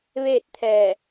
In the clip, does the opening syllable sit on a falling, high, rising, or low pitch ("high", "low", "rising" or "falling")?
falling